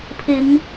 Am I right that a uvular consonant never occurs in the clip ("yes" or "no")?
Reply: yes